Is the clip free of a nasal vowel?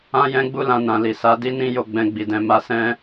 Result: no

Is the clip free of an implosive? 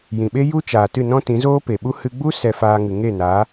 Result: no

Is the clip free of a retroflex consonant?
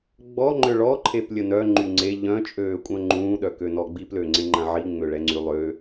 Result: no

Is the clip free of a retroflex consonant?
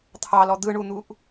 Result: no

